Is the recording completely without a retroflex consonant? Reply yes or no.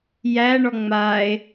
no